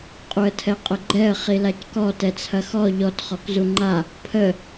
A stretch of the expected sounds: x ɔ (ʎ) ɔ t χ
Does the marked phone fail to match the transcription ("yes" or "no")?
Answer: no